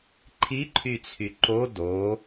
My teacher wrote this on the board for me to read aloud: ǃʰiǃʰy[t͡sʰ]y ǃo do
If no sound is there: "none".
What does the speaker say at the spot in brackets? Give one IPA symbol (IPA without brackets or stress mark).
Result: t͡sʰ